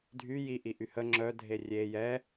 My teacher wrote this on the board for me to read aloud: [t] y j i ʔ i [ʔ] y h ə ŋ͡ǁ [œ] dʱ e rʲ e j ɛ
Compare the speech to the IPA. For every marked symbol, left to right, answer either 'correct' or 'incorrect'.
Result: incorrect: dʱ, correct, correct

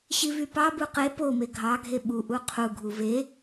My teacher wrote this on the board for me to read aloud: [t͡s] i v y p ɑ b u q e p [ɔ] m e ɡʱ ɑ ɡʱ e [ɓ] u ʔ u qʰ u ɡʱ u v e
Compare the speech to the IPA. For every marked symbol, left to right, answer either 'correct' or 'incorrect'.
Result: incorrect: ɕ, incorrect: o, correct

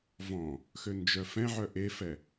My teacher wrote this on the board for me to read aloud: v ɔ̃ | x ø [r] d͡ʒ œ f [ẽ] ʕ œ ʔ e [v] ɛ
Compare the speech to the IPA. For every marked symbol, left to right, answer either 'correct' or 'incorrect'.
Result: incorrect: n, incorrect: ɛ̃, incorrect: f

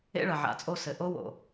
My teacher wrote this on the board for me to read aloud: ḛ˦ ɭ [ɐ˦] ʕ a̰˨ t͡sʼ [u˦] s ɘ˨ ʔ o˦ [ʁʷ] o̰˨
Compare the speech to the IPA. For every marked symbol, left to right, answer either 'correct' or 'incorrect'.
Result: incorrect: ɐ˨, incorrect: o˦, incorrect: w

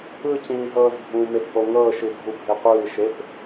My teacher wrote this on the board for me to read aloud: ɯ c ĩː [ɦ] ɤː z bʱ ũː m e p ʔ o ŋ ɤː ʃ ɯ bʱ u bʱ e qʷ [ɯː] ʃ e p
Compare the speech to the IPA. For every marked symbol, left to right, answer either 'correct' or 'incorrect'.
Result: correct, correct

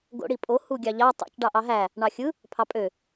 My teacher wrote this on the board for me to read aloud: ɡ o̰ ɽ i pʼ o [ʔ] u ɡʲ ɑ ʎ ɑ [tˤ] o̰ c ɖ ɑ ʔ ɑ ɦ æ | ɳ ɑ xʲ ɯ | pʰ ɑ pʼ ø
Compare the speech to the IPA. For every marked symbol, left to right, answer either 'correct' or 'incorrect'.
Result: incorrect: h, correct

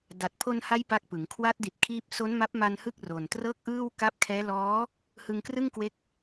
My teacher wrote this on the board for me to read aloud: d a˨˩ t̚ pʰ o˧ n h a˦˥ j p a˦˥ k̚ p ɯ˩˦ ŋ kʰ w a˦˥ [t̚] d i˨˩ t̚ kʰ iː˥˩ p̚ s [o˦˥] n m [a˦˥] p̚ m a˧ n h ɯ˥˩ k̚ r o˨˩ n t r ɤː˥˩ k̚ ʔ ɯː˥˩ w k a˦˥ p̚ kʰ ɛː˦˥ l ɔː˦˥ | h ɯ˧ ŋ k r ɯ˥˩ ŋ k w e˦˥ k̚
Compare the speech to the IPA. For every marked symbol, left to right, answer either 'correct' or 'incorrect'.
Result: correct, correct, correct

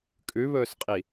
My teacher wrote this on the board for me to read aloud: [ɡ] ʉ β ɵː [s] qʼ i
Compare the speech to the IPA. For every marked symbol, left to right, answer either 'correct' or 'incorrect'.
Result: incorrect: kʼ, correct

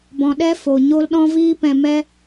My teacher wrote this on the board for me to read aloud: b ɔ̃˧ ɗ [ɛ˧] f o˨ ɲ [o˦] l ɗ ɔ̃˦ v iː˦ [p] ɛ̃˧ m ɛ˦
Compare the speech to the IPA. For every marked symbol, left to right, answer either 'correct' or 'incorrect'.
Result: incorrect: ɛ˦, correct, correct

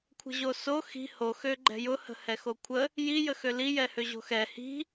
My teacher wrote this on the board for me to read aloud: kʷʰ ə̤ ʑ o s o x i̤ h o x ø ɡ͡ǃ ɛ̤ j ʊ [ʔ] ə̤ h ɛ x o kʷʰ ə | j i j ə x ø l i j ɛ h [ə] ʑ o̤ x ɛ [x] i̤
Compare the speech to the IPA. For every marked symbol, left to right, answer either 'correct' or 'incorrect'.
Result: incorrect: h, incorrect: ø, incorrect: h

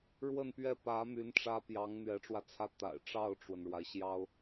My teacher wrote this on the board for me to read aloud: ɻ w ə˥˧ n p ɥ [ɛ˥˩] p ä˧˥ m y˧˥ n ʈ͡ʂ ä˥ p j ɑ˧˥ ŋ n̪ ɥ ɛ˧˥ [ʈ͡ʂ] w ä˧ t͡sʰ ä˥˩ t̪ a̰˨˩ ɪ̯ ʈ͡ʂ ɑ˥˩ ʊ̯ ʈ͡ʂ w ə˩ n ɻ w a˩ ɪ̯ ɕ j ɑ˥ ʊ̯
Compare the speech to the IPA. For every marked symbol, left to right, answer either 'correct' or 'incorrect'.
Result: correct, correct

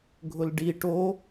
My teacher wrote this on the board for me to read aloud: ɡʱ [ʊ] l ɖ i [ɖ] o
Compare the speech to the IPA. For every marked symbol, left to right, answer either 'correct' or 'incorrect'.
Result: correct, incorrect: ʈ

